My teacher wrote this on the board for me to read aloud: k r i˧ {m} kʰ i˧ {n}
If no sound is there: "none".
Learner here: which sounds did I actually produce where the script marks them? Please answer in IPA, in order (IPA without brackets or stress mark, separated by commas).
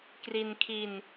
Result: n, n